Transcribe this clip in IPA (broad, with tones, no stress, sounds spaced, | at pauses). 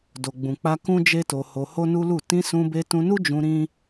d o˨ ɡ͡b ũ˨ k͡p a˧ k ũ˦ d͡ʒ e˦ t o˧ h o˧ h o˦ n u˦ l u˦˨ t ĩ˧ s ũ˧ b e˧ t ũ˧ n u˦ d͡ʒ ũ˧ ɾ ĩ˦